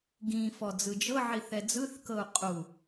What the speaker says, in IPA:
ɡĩ fɔd͡zɯd͡ʒɤʕi θɛd͡zɯθkɤu̯ qʼu

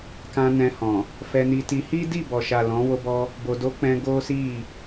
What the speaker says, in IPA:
kã˧nɛ̃˧hɔ̃˨ | fɛ˧ni˧ti˧ hi˦di˦˨bɔ˨ʃa˨ lɔ̃˨˦ wo˦bɔ˦ | bo˧ do˧k͡pɛ̃˧ ɡo˦si˦˨

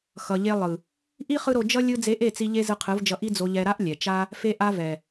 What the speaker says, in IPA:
xʌ˨ʎe˧lˠɯ˨ | ʔi˦ χɯ˦ɾo˧ d͡ʒʌ˦ lʲɯ˦ d͡ze˧ʔe˦˨t͡si˧ ʎe˦zɯ˧qʰɯ˨˦vd͡ʒʌ˧ ʔi˦d͡zo˧ʎɛ˧ ɾa˦ʔlʲɛ˨t͡ʃa˦ | fe˧ʔa˧vɛ˨

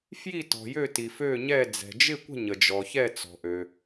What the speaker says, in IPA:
fji˥˩tɔ̤˩ jø˥˩ti˩fø˥˩ɲɛ˥˩ d͡zɛ̤˩d͡ʒɪ˥˩kʷə̤˥˩ ɲə˩d͡ʒɔ˩çɛ˥˩t͡sɔ̤˩ ʔø˩

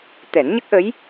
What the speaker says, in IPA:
t̪ɛ˨˩˦nɲə˦˥k̚ʔə˧˥j

